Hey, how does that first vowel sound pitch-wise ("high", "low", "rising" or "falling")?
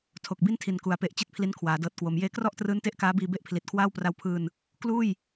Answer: low